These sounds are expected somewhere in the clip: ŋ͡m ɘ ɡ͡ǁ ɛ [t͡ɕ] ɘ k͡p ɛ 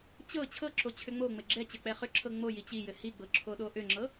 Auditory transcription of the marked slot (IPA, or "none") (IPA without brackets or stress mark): t͡ɕ